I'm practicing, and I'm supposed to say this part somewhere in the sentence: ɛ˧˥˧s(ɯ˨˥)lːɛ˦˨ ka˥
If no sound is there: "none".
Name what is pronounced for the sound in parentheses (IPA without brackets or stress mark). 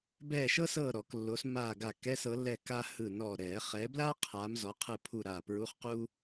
ɤ˨˥